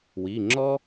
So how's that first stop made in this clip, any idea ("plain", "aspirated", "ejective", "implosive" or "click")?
click